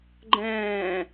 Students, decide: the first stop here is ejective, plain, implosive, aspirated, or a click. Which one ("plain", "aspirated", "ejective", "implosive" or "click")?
click